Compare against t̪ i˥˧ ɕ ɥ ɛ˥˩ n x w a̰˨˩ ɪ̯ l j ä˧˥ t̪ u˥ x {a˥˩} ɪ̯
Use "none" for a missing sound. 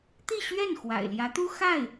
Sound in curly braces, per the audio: a˥˩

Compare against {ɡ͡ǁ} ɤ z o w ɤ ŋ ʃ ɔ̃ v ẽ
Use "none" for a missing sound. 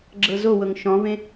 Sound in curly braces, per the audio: ɡ͡ǁ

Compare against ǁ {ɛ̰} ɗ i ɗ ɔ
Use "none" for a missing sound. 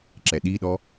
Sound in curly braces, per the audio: ɛ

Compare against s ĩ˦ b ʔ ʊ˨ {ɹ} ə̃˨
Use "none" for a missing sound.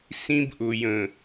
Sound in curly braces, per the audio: j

